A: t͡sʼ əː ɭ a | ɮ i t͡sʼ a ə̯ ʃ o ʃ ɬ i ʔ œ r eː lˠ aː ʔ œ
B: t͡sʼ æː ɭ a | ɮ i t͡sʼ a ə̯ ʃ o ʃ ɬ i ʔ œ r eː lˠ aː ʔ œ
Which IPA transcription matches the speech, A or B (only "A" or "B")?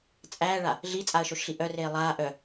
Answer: B